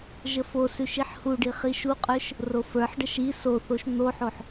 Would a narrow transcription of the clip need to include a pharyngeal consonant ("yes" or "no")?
yes